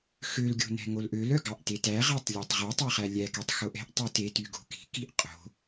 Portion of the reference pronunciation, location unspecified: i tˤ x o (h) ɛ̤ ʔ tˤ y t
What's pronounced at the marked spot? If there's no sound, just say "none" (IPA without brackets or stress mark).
ʔ